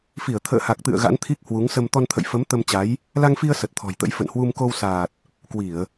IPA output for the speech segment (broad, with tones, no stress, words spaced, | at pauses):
fi˧˩ə̯ t̪ʰə̰ː˧˨ha˨˩k̚t̪ɨ̰˧˨ə̯ ɣa̰˧˥nt̪ʰi˦˥k̚hwu˨˦ŋ sə˧m t̪ɔ˧nt̪ʰə̰˧˨jfə˨˦m t̪ə˧mt͡ɕa˨˦j | la˧ŋfi˧ə̯ sə˨˩t̚t̪ʰɔ̤˨˩jt̪ə̰˧˥j fə̰˧˨nhwu˧m ko˧wsaː˨˩t̚ | kwi˧˩˨ə̯